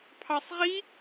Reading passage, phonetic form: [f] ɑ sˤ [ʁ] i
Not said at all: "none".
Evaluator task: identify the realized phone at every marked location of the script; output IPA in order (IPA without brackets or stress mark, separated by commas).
pʰ, ʁ